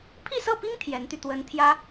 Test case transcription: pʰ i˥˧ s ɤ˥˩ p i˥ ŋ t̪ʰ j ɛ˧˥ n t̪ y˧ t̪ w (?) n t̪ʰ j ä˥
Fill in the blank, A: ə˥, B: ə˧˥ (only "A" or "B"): B